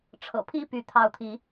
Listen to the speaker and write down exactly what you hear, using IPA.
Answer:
ʈ͡ʂʰɤ̰˨˩pʰi˥˨ py˨˦t̪ʰɑ˨˦ʊ̯t̪ʰi˨˦

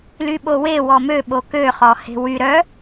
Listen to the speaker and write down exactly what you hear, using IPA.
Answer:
lyɓowe wɔmø ɓokø χɔhe̤wy ɾœ

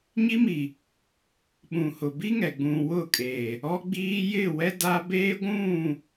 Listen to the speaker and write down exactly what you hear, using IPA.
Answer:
ɲi˦mi˨ | ɓũ˨hʊ˨bi˦ŋɛ˨ ɡ͡bũ˨wʊ˦˨kʼeː˨ | ɔ˦ɡ͡biː˦ jɪ˦˨wɛ˦da˦ beː˦ɡʷũ˦˨

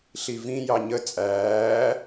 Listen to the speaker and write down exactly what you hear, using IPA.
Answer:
ɬivĩ jɑɲə t͡sʼæː

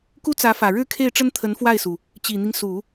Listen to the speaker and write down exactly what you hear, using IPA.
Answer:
ku˥t͡sä˧˥fä˨˩ ɻɻ̩˥˧kʰe˥˩ɪ̯ʈ͡ʂə˥n t̪ʰə˧˥nfwa˥˩ɪ̯su˩ | t͡ɕi˨˩n̪i˦ŋ su˨˩˦

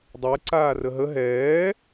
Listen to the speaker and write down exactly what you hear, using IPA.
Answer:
dˤɛǀaːrə ɦə ɦɛː

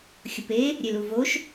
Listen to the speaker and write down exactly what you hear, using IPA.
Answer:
xʲʊpe | ɾʲeluvoʃ

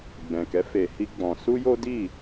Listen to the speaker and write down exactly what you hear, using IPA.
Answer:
ɡ͡bɛ̃˨kɛ˨˦ fe˧hi˦ɡ͡bɔ̃˧ su˦jo˦di˦˨

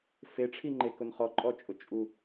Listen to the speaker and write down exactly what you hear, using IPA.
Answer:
feʈ͡ʂʰiŋ͡ǃekʊn χɔǃʼɔt͡ʃʼʊ t͡ʃʼu

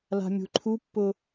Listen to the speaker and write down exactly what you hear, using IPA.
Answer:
la̤mʲṳǃʰupːʊ

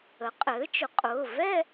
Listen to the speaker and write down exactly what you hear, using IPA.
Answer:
ə˩˥qʼɘː˩˥t͡ʃʊ˩˥qʼʊː˩˧˩ vɛ˥˧

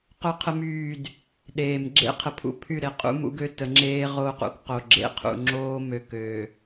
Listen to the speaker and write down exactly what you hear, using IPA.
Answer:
qœ˦qʰə˦myː˦˨d | ɗeː˨m ɡ͡ǁḛ˦qʰə˨pʰṵ˦pʰy˦˨ ɾe˨qʼṵ˦mṵ˦ɡø˦ tə˨˦ŋ͡ǁeː˦ ʁoː˦qṵ˦kqo˨ ɡ͡ǁḛ˦qʰṵ˨ ŋ͡ǁoː˦mø˨ køː˨

